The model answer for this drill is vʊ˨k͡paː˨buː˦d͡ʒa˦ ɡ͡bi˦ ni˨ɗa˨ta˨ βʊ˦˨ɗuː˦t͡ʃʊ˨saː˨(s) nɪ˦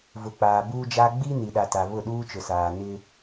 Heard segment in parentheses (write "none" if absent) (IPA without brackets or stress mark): none